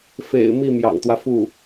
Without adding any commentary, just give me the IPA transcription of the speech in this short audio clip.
f ḛ˨˩ ɪ̯ m i˥˩ m j ɑ̰˨˩ ŋ t̪ w ä˦ f u˥˩

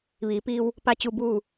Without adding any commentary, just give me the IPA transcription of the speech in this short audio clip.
ʋ iː˩˧ p iː˧ w | p a˧ t͡ɕ u˧ b uː˥˨

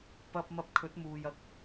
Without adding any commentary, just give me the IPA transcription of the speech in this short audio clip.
p ɐ˧ p̚ m ɐ˧ p̚ kʰ ɵ˨˥ t̚ m uː˨ j ɐ˧ k̚

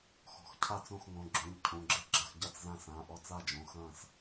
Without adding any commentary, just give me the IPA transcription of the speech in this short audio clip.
x ɔ̤˩˧˩ x cʰ a˥˨ t͡s õ˥˨ x ŋ õ˩˧˩ ɡ͡ǁ ũ˩˧˩ ʎ cʰ ũ˩˧˩ ɡ͡ǁ ɨ˥˨ ɡ͡ǁ ɐ˥˨ x ɟ a˥˨ t͡s z ã˥˨ s ã˩˧˩ ʔ ɔ˥˨ t͡s a˥˨ d͡ʒ õ˩˧˩ x ɐ̃ː˥˨ s

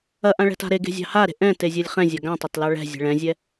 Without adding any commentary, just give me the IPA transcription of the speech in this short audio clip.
ɐ ʔ ã ɭ ɛ̤ t a̤ ɾ e ɡ e̤ zʲ ɑ̤ h a ɾ e̤ ʔ ɛ̃ t e zʲ ɛ lʲ χ ɛ̃ zʲ a ɡ ã tˤ ɐ t l ɑ ɭ ɛ̤ zʲ ɛ̤ ɭ ɛ̃ zʲ ɛ

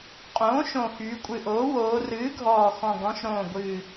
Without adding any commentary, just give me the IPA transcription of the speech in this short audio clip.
qʼ õː˩˥ ʃ õ˨˩ x yː˩˧ kʷʼ ɨ˨˩ ʔ oː˩˥ w oː˩˧ r ɨː˩˥ ɡʱ ɔː˨˩ x ɔ̃˨˩ ɡ ɔ̃˩˧ ʃ ɾ õː˨˩ ɡʷ ɨː˨˩

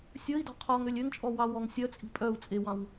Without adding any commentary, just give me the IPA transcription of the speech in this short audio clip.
sʲ ɵ i̯ d ɔ̤ qʰ ɔ ŋ ø lʲ ø ŋ t͡ʃʼ ɔ w ɑ w ɔ ŋ sʲ œ t͡sʼ i̤ pʼ œ u̯ t͡sʼ e w ɑ̃ w

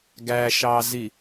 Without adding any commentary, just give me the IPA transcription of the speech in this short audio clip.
ɡ æ ʃ ɑ z i

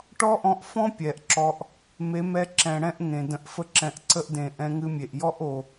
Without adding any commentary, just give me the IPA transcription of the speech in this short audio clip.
ʈ ɔ˦ ʔ ɔ̃˧ ʔ f ɔ̃˦ pʲ ɛ˨ ʔ ǁ ɔ˧ ʔ | m e˨˦ m ɛ˧ ǁ ɛ̃˨ ɽ ɛ̃˦ ʔ ŋ ẽ˨ d ə̃˧ ʔ f ə˦ ǁ ɛ̃˧ ʔ ǀ ə˦ ʔ d ẽ˨ ʔ ɛ̃˧ ŋ ɨ˧ mʲ e˨ ʔ j ɔ˦ ʔ o˨

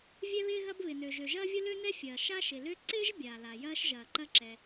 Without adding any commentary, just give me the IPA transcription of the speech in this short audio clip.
vʲ ɛ˥ β ɪː˥ ɣ ɐ˥ b β ɪ˩ n ø˩ ʒ ø˩ ʒ ɐː˥ vʲ ʊ˥ l ø˥ n ɛ˥ fʲ ɐː˩ ʃ a˥ ʃ ɪ˩ l ø˥ ǀ ɪː˥ ʒ bʲ a˩ l a˩ j ɐː˥ ʃ ʒ ɐː˩ ǃ ɐ˥ ǁ ɛ˩

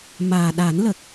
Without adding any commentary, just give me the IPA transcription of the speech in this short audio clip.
m aː˨˩ ɗ a˨˩˦ n l ə˨˩ k̚

